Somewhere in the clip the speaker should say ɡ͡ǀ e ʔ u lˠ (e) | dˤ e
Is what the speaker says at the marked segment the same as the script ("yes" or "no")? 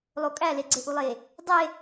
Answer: yes